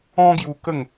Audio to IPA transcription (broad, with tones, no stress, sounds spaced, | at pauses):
ɔ̃˦ ɡ j u˧ k ə˥˧ ŋ